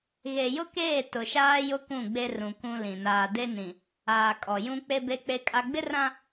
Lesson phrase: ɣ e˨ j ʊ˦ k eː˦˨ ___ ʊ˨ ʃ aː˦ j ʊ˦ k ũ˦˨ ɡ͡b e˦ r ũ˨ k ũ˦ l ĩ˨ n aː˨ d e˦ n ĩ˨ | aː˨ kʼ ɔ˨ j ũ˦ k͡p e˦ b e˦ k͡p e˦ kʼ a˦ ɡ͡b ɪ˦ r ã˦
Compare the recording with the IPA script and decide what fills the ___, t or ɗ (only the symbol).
t